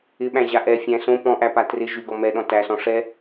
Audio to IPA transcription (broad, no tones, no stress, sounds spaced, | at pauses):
ɪ ɓ æ̃ ʑ a ʔ ɛ fʲ æ̃ s õ p ɔ̃ ʔ æ p a t r ɪ ʒ y ɡ ɔ m ɛ ɗ ɔ̃ t æ s ɔ̃ ʂ ɛ